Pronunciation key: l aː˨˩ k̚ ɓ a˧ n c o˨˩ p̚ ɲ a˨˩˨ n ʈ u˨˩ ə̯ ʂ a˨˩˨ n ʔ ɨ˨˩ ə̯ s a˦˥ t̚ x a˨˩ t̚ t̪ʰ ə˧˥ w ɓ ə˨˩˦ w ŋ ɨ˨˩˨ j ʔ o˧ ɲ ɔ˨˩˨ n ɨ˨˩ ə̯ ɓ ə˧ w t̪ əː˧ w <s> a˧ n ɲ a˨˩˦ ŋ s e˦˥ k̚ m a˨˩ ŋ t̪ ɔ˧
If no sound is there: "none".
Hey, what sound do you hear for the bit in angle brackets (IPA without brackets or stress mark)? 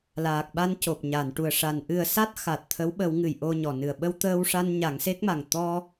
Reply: ʂ